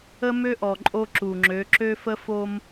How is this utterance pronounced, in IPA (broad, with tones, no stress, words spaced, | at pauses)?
ə˦mø˦ʔɔ˨ ǃʼo˦ǁu˨ŋ͡ǁø˨˦ ǁø˦fə˦fo˦m